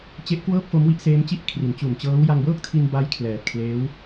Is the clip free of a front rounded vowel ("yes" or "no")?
yes